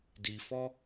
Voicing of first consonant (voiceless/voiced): voiced